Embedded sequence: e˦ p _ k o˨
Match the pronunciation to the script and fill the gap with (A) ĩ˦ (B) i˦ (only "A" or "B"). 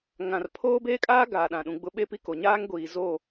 B